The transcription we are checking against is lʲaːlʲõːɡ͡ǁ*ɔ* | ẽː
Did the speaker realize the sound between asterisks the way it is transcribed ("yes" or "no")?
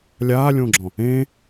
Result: no